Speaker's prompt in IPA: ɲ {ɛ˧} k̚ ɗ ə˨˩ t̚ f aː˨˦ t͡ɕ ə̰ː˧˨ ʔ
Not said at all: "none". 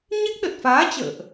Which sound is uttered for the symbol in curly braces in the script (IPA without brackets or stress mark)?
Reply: ɛ˦˥